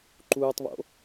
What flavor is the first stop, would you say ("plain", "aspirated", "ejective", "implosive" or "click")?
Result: click